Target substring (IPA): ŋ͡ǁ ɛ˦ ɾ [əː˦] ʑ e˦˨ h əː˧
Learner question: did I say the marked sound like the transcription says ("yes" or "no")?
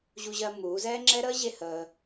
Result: yes